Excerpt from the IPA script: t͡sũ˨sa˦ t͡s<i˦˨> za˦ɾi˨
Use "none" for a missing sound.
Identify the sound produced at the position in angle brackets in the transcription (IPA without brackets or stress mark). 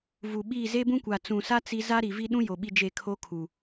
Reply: i˦